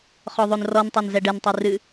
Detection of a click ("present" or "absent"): absent